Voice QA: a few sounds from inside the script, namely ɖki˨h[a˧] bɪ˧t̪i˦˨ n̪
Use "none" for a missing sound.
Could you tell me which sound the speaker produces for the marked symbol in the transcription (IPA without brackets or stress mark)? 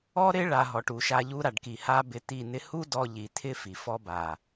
a˧